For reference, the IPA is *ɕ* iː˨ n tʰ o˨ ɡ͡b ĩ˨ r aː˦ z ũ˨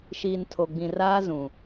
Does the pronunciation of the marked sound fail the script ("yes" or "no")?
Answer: yes